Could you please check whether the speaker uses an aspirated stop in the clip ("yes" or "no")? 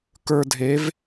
no